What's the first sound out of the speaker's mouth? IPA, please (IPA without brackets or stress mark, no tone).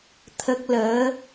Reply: t̪ʰ